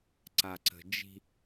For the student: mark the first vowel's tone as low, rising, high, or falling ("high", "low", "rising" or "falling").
low